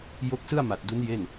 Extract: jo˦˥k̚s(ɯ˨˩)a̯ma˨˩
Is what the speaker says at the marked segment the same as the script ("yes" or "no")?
no